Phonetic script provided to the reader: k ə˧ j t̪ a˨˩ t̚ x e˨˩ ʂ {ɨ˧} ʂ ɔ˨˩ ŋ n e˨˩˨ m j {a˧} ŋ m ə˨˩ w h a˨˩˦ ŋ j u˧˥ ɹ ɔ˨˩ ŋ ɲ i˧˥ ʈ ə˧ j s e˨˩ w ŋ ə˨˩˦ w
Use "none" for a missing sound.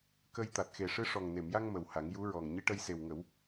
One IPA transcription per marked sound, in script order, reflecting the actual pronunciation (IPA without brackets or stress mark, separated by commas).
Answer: ɨ˧, a˧